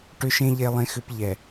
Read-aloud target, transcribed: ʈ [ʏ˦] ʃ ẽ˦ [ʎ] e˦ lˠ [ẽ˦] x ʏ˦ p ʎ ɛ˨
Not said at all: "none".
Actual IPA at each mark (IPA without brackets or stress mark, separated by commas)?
ʏ˦, ʎ, ẽ˦